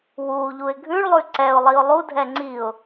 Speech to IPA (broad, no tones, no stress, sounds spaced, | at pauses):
w u ʎ u ɪ̯ ɡʱ ʉ ɭ lˠ ʉ ǀ ɛ ʊ̯ lˠ i ʊ̯ lˠ u dʱ ɛ ŋ͡ǀ i ʊ̯